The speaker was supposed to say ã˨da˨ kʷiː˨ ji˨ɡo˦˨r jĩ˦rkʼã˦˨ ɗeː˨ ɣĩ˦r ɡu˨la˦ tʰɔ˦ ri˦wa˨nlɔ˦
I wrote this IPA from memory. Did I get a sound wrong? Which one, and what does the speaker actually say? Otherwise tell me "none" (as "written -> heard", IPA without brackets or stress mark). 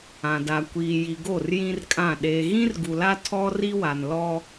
none